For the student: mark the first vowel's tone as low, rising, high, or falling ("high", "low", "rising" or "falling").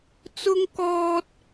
high